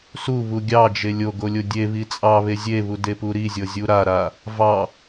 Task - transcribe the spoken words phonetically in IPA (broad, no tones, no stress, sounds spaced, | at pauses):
s u β u ɡʲ ɑ d͡ʒ e lʲ o ɡ o lʲ o dʲ e β i t͡sʼ ɑ β e zʲ e β u d e p u ɾ i zʲ ɤ zʲ u ɾ a ɾ a | v ɑ